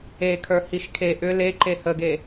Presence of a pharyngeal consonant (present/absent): absent